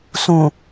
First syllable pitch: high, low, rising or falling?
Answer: low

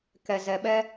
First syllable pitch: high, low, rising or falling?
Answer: low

